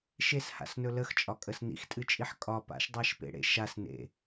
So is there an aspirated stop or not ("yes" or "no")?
no